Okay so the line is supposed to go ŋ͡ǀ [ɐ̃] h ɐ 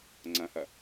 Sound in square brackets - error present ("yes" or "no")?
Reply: no